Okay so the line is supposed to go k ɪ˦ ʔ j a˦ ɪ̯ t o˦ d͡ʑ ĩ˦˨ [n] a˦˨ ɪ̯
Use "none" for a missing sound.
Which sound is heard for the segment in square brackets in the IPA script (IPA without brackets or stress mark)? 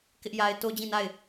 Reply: n